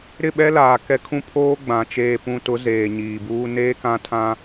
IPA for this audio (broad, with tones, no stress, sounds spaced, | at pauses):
ɾ ɪ˦˨ ɓ ɛ˦ l aː˨ k ɛ˦ kʰ ũ˦ pʰ oː˦ ɡ͡b ã˨ t͡ʃ eː˨ p ũ˨ t ʊ˨˦ z eː˨ ɲ iː˨ b uː˦ n eː˦ k ã˦ tʰ ã˦